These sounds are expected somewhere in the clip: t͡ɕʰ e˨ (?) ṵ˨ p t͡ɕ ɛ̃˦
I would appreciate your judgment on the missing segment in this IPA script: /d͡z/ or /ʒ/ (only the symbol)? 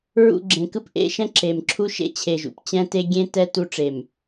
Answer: ʒ